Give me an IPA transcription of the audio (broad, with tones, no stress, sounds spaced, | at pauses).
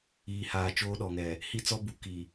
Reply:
iː˨ h aː˨ t͡ʃ oː˦ ɗ ɔ˨ ŋ ɛ˨ | h i˦ t͡s ɔ˦ b u˨ k i˨